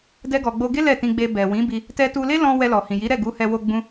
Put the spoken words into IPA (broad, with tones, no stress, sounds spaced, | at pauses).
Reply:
d ɛ˧ ɡ ɔ˨ ɡ͡b o˧ ɡ e˦ l ɛ˦˨ t ĩ˧ ɡ͡b e˧ b ɛ˨ w ĩ˨˦ b i˧ | t ɛ˧ t u˧ l e˦ l ɔ̃˧ w ɛ˧ l ɔ˨ h ĩ˨ j i˨˦ ɾ ɛ˦˨ ɡ u˨˦ h ɛ˧ w o˧ ɡ͡b ũ˦